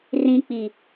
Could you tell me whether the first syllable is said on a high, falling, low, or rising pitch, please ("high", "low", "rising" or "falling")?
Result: high